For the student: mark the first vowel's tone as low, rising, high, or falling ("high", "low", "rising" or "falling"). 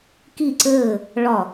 falling